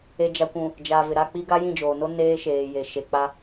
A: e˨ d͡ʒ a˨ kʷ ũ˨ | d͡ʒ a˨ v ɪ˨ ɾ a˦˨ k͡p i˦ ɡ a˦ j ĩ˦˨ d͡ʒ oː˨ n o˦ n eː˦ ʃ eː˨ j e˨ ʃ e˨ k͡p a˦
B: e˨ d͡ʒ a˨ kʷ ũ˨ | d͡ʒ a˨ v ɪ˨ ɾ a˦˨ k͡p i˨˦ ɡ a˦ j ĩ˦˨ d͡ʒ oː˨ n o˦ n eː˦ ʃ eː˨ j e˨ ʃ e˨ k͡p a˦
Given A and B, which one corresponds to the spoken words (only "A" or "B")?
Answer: A